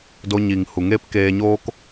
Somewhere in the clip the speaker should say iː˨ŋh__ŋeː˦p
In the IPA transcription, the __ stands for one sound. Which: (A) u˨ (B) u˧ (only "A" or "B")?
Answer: A